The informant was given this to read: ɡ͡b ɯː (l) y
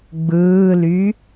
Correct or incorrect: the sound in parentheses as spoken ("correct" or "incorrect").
correct